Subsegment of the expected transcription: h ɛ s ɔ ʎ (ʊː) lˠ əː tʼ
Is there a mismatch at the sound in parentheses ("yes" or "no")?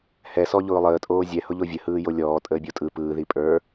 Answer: no